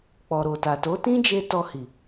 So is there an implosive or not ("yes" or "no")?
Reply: no